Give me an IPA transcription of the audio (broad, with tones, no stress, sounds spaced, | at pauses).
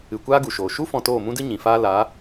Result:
ɨ˨ kʷ aː˦ ɡ u˨ ʃ oː˨ ʃ u˦ f ɔ̃˧ t oː˦˨ m ũ˦ d ɨ˦ ɲ ĩ˨ f aː˦ l aː˨˦